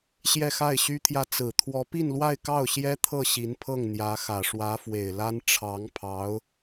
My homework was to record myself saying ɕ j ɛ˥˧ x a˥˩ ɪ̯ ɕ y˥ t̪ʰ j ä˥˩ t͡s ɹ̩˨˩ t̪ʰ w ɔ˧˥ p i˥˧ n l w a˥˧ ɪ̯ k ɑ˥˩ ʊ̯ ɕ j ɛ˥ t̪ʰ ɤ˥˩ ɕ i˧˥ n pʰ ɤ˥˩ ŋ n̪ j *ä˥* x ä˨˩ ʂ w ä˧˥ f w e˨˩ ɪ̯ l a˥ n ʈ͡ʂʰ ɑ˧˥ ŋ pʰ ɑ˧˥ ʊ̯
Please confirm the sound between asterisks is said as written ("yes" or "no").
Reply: no